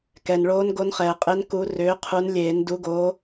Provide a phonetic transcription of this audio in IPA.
kɛ˩n ɭoː˨˦nɡo˨˦nχɛː˩qʼe˨˦n ku˨˦rʏː˨˦ qʰu˨˦nlʲeː˨˩˦n du˨˦ɡoː˨˦

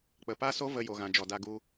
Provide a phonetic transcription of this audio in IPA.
k͡pə˨pa˦so˦ və˧jo˨ɣã˨ d͡ʒɔ˨da˧ɡu˧

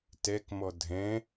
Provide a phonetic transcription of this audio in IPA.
tɛkmɔ dʱɛ̃

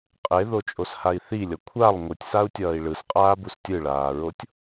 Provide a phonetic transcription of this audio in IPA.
qʼeðot͡ʃʼoshai̯ θilʲʌ kʷʰalˠ ŋʷɯtʲsau̯tʲʌːi̯ ɭɯsqʼaːbus tʲɯɭaːɹotʲ

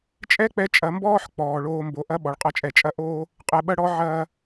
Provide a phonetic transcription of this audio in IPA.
t͡ʃʼɛ˥k͡pɛ˧ t͡ʃʼɐ˧mbɔː˥ħ k͡pɔː˩ ɭoː˧mbo˩ ʔɐ˥ ɓɔ˩ɭqʼɐ˧t͡ʃʼɛ˩ t͡ʃʼɐ˥ʔoː˥ | qʼɛ˧ɓɐ˥ɽɔ˥ ʕɐː˥

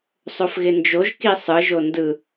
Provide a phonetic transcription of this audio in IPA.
sˤofɣɪnd͡ʒoʒ kisˤɯ ʒondɯ

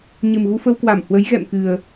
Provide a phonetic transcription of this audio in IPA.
ɲɨ˨˩mɣu˧ fə˧wkwa˧˩m hwə˨˦jɣɛ̰˧˨mkɨ˨˩ə̯

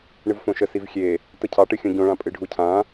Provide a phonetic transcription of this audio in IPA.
ɳɨvfõʃə sivxʲe | təcʰɑʈɨxʲõ ɟõɭã pʼɨɖʱucʰã

